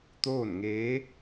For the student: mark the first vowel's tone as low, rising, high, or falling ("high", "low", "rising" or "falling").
falling